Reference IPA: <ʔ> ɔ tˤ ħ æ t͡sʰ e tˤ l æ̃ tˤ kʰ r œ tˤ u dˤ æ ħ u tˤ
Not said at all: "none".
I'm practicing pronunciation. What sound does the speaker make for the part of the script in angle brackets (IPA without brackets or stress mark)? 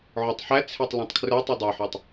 ʕ